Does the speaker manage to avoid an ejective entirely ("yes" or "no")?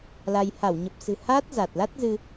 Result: yes